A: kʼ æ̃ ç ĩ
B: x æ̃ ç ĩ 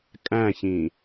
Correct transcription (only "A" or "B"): A